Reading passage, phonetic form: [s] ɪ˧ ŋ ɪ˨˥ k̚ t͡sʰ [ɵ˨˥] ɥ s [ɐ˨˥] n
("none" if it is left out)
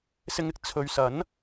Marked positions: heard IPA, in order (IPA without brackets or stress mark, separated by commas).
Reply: s, ɵ˨, ɐ˨˥